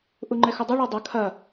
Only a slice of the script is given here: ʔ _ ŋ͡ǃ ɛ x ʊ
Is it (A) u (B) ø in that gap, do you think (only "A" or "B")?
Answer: A